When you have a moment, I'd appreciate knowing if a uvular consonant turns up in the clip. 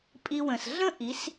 no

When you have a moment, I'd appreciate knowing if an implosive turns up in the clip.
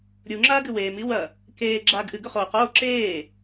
no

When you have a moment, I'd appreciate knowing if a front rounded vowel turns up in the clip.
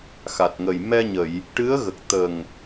no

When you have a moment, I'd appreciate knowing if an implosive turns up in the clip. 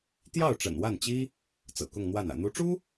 no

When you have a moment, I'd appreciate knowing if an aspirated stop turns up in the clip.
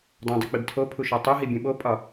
yes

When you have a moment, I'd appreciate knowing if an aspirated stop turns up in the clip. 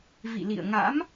no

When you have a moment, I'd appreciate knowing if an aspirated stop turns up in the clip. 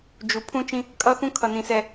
yes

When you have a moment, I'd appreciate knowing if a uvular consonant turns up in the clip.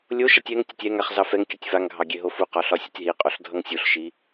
yes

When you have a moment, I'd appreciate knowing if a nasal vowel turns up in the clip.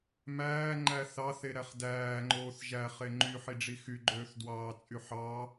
no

